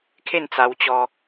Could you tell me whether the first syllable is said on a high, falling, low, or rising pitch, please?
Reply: falling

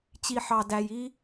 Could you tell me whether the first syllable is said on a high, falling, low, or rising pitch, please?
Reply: low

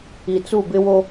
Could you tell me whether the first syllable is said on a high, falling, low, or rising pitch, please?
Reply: low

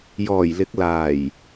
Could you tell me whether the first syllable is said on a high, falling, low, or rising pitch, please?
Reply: low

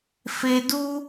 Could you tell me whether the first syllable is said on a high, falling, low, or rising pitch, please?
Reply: low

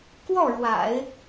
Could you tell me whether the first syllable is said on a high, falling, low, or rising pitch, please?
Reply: falling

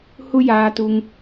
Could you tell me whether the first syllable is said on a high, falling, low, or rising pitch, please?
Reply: high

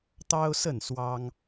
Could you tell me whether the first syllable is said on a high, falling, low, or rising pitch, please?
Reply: high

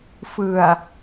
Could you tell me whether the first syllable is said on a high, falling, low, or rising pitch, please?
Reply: low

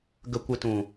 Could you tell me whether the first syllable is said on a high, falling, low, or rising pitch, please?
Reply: high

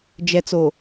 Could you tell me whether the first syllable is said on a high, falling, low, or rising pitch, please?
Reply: low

